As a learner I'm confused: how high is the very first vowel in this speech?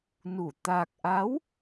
high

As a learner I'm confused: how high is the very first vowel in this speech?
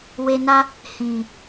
mid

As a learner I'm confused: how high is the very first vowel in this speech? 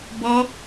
mid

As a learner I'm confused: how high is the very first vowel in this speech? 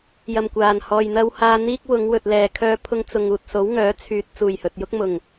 low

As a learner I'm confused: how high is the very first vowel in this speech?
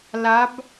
low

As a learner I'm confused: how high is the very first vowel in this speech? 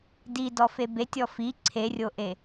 high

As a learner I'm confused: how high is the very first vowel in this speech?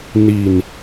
high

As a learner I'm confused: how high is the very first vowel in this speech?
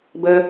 mid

